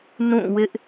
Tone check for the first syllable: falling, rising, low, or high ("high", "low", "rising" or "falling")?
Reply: falling